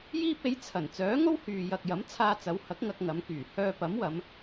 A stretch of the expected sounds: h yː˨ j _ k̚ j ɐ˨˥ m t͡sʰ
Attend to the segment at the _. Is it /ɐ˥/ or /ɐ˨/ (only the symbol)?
ɐ˨